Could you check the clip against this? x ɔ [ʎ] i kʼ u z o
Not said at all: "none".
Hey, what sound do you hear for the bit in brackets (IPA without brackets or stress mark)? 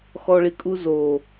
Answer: ɭ